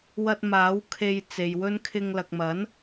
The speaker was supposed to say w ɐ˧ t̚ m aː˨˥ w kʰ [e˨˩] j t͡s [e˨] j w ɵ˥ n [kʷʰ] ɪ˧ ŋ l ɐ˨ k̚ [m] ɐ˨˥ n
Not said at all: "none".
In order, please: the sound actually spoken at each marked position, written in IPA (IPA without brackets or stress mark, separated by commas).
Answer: e˨, e˨, kʰ, m